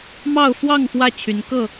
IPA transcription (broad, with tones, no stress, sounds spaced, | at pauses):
m ɑ˥˨ ʊ̯ f w ɑ˥˨ ŋ f w ä˥˨ t͡ɕʰ y˨˦ n k ɤ˥˨